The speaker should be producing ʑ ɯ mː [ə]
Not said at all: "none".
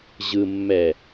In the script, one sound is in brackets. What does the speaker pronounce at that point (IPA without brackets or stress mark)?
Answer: ɛ